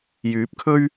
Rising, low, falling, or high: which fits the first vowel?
rising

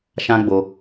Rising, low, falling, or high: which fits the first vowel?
high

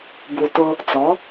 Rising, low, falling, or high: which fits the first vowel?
low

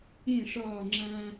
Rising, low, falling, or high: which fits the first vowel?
falling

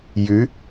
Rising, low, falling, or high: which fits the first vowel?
rising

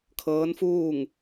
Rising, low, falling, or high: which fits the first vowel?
rising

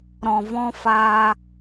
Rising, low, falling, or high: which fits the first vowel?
low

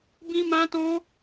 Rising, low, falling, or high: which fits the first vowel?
high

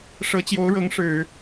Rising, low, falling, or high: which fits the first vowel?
rising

